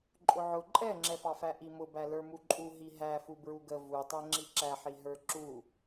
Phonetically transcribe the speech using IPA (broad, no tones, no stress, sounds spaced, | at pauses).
ǃʼ ʊ ʕ ʊ ǃʼ ɛ ŋ͡ǁ ɛ f ɑ f æ ʔ i m ʊ b æ l ə˞ m u ǃʼ u ɦ i ɦ æ f u b ɹ u ɡ ə v u tˤ æ ŋ͡ǁ i ǁ æ ħ i ɦ ə˞ ǁ u